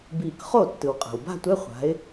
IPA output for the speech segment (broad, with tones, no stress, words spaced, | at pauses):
biː˧˩k χo˥˩ tːɯ˩wqʼa̤˩w ba̤˥˧tʷɛ˧˥˧ χʷa̤˨˦ɪ̯